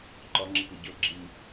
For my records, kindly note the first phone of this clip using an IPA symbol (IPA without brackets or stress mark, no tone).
ǃ